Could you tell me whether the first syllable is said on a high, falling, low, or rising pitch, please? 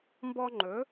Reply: high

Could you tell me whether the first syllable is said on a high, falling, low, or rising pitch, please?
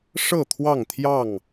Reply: falling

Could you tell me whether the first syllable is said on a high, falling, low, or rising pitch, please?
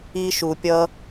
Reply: low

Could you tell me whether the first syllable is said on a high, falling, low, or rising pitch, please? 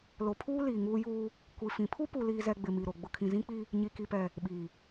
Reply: low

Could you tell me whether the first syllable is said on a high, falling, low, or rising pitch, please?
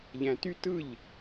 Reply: low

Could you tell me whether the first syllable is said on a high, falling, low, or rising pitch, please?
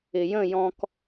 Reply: low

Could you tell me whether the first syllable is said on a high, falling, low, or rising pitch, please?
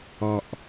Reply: low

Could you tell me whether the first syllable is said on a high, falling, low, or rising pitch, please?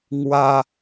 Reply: high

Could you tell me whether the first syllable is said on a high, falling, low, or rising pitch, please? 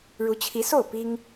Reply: rising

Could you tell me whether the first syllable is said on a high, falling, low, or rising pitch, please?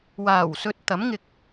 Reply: low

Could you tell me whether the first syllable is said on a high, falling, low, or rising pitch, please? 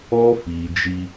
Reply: high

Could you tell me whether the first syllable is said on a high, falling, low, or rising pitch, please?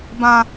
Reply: high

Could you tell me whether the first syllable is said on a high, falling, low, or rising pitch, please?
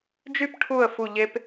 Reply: high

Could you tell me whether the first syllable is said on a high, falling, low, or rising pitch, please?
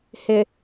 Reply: low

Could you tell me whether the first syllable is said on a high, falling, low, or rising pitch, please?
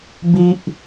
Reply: high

